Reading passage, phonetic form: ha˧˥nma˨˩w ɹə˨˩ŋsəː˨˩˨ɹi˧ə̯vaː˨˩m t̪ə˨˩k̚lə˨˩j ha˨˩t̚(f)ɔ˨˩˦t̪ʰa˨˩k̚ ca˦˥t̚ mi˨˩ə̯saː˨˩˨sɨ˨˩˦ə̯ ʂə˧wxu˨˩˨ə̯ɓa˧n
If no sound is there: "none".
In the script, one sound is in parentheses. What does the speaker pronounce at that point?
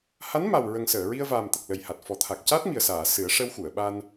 f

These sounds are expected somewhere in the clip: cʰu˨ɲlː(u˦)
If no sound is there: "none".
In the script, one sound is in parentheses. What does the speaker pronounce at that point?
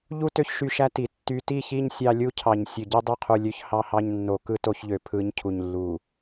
u˨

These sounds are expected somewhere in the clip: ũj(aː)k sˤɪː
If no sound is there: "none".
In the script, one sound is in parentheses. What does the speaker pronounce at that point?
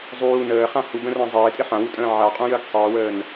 əː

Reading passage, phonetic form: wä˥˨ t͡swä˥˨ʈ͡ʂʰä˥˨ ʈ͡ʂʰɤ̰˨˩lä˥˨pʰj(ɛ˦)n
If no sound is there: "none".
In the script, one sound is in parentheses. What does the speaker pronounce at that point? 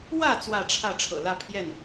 ɛ˥˨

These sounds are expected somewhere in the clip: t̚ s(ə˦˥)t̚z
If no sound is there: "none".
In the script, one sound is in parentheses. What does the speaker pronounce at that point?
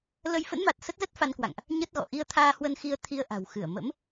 ə˦˥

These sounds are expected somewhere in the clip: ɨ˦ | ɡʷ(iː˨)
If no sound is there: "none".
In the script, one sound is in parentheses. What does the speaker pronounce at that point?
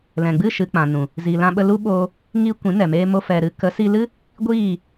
iː˦˨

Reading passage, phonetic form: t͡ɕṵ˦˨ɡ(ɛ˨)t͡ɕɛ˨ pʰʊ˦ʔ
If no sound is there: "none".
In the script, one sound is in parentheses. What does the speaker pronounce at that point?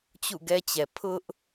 ɛ˦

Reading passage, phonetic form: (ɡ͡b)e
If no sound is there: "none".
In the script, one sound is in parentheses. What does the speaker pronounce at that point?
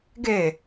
ɡ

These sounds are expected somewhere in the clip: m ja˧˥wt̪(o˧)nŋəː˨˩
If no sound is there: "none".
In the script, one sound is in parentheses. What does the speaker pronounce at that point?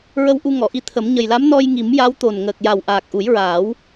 o˨˩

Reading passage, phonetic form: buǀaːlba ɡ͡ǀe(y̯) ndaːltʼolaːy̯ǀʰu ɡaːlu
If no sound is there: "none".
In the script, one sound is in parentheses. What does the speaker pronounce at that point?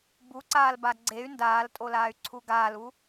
y̯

